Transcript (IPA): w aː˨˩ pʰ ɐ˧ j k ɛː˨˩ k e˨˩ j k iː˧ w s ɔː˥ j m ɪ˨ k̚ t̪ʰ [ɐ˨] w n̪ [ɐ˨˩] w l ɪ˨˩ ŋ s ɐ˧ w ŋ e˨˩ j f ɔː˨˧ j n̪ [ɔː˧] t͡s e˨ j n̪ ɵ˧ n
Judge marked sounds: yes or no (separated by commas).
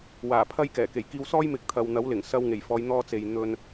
yes, no, yes